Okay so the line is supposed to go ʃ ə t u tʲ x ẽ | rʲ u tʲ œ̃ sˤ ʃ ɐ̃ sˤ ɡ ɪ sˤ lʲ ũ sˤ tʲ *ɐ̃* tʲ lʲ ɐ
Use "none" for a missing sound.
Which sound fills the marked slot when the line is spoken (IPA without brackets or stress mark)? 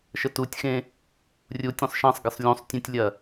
ə̃